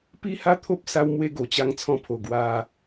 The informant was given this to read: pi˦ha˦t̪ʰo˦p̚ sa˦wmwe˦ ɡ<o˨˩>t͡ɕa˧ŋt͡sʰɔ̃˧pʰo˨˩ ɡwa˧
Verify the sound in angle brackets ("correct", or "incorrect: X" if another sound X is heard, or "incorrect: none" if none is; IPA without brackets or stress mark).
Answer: correct